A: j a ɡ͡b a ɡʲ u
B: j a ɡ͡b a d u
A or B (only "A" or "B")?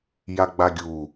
A